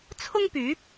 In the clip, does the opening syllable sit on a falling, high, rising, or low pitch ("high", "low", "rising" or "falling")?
high